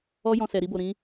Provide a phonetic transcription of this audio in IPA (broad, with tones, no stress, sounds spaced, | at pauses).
ɔ˦ j ɔ̃˧ s ɛ˨ ɾ i˧ b o˨ ɾ ĩ˨˦